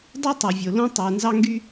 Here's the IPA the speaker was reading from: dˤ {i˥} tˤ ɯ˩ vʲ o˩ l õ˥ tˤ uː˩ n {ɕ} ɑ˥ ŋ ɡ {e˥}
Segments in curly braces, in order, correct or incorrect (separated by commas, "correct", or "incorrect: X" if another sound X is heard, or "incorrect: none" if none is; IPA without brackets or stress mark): incorrect: y˥, incorrect: z, incorrect: y˥